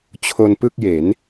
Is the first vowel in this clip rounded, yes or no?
yes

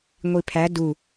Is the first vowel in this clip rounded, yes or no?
no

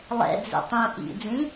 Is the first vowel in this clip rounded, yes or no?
no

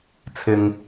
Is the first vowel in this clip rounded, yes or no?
no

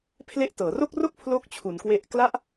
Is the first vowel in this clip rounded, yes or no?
no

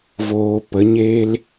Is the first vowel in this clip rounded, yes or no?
yes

